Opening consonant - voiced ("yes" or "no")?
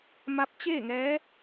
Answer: yes